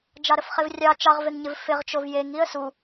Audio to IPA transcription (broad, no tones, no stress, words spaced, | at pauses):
d͡ʒɑɾəfχevrʲɑ t͡ʃɑʁveŋɲɪv fɪʁt͡ʃov jeŋ iə̯su